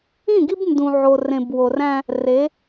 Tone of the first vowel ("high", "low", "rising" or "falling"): falling